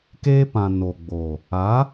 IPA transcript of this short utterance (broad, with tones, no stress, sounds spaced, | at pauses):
k eː˦ p ã˨ n o˨ ɡ͡b o˨ | a˨˦